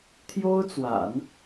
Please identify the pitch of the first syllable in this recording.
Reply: high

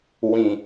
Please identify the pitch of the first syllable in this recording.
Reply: low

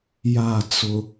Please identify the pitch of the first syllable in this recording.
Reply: falling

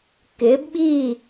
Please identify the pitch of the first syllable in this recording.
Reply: rising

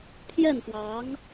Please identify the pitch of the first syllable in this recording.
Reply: falling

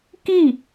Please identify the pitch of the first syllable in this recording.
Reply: falling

